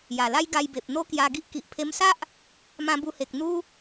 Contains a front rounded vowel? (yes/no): no